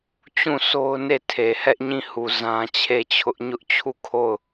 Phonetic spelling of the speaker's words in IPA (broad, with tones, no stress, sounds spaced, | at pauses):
t͡ɕ ũ˦˨ s o˦ ʊ̯ n e˦˨ tʰ e˨ h ɛ˦ ʔ ɲ ĩ˦˨ h u˨ z ã˦ t͡ɕʰ e˦˨ t͡ɕʰ ʊ˦ ʔ ɲ ʊ˦ ʔ t͡ɕʰ u˦˨ kʰ o˦˨ ʊ̯